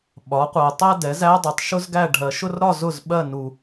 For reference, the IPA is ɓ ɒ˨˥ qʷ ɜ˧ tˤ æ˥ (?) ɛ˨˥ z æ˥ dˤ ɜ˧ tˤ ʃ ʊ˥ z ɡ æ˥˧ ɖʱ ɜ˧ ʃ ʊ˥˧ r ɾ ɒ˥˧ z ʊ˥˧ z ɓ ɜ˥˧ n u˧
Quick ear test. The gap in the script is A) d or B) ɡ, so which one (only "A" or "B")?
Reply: A